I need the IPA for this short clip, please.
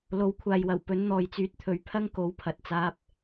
l o˨˥ w kʷʰ aː˨ j w ɐ˨˩ w p ɵ˨˥ n n̪ ɔː˨ j t͡s yː˧ t̚ t̪ʰ ɵ˨˧ ɥ pʰ ɐ˥ ŋ k o˨˥ w pʰ ɐ˨ t̚ t͡s aː˧ p̚

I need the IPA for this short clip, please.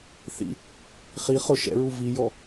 θ ḭ | χ i χ ʊ ʃ ɛ̰ ɹ u v i j ɔ

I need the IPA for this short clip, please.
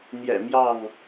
n̪ j ɛ̰˨˩ m j ɑ˥˨ ŋ

